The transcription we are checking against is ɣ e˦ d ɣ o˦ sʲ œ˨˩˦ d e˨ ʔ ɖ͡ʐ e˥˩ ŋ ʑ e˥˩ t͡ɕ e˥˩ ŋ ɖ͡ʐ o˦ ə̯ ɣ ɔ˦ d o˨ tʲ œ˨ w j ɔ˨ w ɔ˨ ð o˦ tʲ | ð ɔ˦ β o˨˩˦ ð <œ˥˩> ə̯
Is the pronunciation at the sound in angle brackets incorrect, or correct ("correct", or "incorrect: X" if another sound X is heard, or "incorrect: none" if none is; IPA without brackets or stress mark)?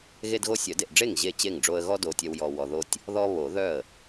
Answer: correct